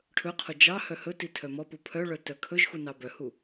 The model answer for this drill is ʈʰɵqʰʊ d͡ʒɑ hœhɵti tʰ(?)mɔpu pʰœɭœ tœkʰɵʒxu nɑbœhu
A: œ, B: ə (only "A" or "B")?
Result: A